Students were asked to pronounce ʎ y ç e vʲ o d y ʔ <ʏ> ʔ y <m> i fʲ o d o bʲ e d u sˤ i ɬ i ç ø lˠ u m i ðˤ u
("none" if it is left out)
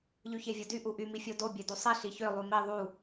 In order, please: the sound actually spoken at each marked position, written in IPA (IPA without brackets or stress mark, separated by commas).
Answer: u, m